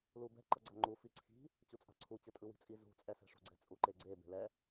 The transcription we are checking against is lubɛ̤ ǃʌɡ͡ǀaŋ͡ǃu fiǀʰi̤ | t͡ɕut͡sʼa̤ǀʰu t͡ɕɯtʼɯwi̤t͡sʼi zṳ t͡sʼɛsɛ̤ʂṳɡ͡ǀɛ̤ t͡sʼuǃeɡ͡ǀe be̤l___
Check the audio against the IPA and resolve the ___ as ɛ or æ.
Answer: ɛ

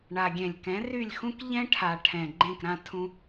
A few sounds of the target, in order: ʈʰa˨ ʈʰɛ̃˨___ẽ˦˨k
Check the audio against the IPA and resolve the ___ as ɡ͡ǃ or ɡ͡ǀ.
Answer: ɡ͡ǃ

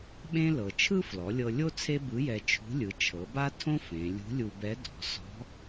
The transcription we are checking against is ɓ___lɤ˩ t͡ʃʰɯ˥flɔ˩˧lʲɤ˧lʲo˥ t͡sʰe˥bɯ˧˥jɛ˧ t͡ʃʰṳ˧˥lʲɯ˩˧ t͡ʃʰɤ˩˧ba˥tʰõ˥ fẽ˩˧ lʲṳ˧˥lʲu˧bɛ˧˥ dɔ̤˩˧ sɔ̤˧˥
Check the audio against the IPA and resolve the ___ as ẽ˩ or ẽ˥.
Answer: ẽ˥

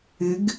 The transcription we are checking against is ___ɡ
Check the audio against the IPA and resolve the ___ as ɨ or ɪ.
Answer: ɪ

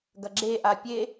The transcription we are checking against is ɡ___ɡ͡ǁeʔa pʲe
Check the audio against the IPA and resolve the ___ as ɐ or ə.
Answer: ɐ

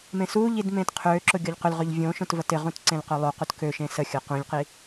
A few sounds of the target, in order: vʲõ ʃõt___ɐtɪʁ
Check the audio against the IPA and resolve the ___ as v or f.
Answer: v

